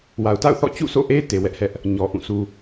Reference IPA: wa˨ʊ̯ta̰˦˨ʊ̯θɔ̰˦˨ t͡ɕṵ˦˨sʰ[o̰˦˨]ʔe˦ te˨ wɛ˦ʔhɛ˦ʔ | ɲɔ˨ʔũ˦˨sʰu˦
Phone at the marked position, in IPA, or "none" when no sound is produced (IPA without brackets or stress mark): o̰˦˨